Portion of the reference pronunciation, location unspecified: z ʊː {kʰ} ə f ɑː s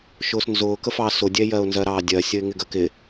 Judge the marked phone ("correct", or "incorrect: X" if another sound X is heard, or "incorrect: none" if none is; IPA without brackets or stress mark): incorrect: k